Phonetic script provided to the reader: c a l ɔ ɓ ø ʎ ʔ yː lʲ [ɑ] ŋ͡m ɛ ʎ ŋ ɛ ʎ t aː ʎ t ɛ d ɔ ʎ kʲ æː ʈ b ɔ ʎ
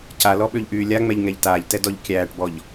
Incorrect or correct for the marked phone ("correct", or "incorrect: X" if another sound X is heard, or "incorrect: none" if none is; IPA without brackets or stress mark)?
incorrect: a